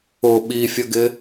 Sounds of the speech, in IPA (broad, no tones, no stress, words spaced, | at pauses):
ʊ ɓifʲəɡɪ